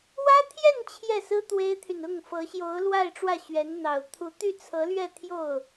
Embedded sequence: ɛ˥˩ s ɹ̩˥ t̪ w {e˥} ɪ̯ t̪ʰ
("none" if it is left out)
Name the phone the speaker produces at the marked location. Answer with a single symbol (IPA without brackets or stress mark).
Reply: e˥